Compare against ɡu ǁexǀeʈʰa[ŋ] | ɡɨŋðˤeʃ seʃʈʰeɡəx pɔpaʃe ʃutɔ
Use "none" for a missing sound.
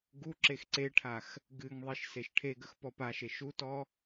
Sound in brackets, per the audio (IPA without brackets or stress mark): x